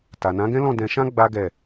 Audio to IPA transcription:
t a˨ n ã˨˦ ɡ ɛ̃˦ l ɔ̃˦˨ d ɛ̃˧ ʃ ã˦ ɡ͡b a˦ ɡ ɛ˦˨

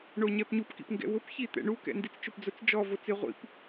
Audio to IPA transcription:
ɳ o ɲ ɛ p ɲ u p k ḭ p ŋ ɡ ɛ̰ w ʊ p ç i t̪ ɛ̰ ɳ u k ɛ̰ n d i t͡s t͡ʃ ʊ p d͡z ʊ t͡s d͡ʒ ɔ v o t͡s ɪ ʁʷ ḭ p

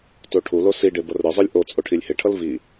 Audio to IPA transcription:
t o ʈʰ u l o s i ɖ e b ʌ r ɾ ɯ zˤ ɯ lʲ ʔ o t͡sʼ o ʈʰ i lʲ h e ʈʰ ʌ l v i

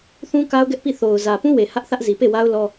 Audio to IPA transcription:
θ ũ˦ k a˦ ʊ̯ ɡ ɛ˦ ʔ p i˦˨ θ o˨ ʊ̯ z ä˨ p ũ˦ w e˨ h ä˦ ʔ θ ä˦ ʔ z i˨ p e˦˨ w a˦ ʊ̯ l ɔ˦

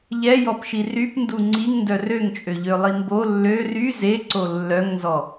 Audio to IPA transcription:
ʎ ɛ j ɔ p ʃ i r y p n d u ŋ͡ǀ i ŋ n d œ r ø ŋ t͡ʃʼ ø ʎ ø lˠ i m b o lː ø r y z e ǀ o lː œ ŋ n z ɔ

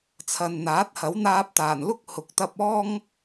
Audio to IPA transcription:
t͡sʰ ɐ˨ n n̪ aː˨˥ t̚ h ɐ˨˥ w n̪ aː˧ p̚ t̪ aː˨˩ n l ʊ˥ k̚ h ʊ˨ k̚ t̪ ɐ˧ p̚ ɔː˥ ŋ

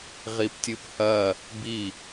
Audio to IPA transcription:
ʁ i p tʲ ɨ p h ɐ | b i

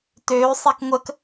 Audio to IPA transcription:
t øː sˤ ɛ k ŋʷ ə k

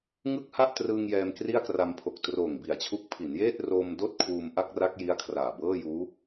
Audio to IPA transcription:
ŋ ɯ˥˩ k̚ h a˥˩ ʔ t r ɯː˧ ŋ j ɛː˧ m k r i˥˩ a̯ k r a˧ m pʰ o˨˩ k̚ t r oː˨˩ ŋ b i˨˩ a̯ t͡ɕʰ u˦˥ k̚ pʰ i˩˦ n j eː˥˩ t̚ r oː˧ m d oː˥˩ t̚ kʰ uː˧ m ʔ a˥˩ k̚ r a˦˥ k̚ j i˦˥ a̯ kʰ r aː˨˩ b ɤː˥˩ j uː˦˥

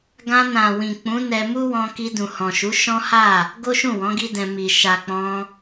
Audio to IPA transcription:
ɡ ã˧ n ã˨ w ĩ˨ k͡p ũ˨˦ n ɛ˧ m u˦ w ɔ̃˧ k i˧ d ũ˨ h ɔ̃˨ ʃ u˨˦ ʃ ɔ̃˦ h a˦˨ | ɡ o˦ ʃ ũ˦˨ w ɔ̃˨˦ ɡ i˦ d ɛ̃˧ m i˨ ʃ a˨ k͡p ɔ̃˧

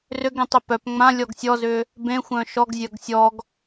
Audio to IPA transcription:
r ʏ ɡ ẽ tˤ e p œ p ŋ͡m ã lʲ ɔ ɡ sʲ ɔ z ʏ | b ẽ xʷ œ̃ ʃ ɔ ɡ zʲ œ ɡ sʲ ɔ ɡ

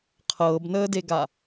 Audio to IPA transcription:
qʰ ɤː b n əː d e ɡ a

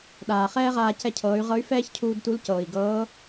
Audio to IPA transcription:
ɗ aː˩ χ ɛː˥ ʁ aː˧ c ɛ˧ cʰ ɤː˩˧ y̯ ʁ ɤ˧˥ y̯ f ɛː˥ ç cʰ uː˧ d t u˧˥ l c ɤː˩ i̯ ɡ ɤː˧˥

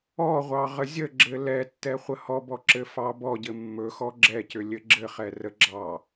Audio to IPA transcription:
ɔ ʁʷ ɑ ʁ ə zʲ ə ɡ͡ǁ ɘ l ɛ tː ɛ χʷ ə h ɔ b ɔ ǁ ɘ f ɑ b ɔ ɟ ɘ mː ɵ x ɔ ɡ͡ǁ ɛ c ʏ lʲ ɘ ɡ͡ǁ ɘ χ ɛ r ə ɡ͡ǁ ɑ

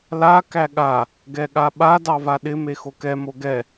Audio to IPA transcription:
l a k æ ɠ a | ɡ ɛ ɠ a ɓ a d ɑ v a ɗ ɪ m e x o k ɛ m o ɡ ɛ

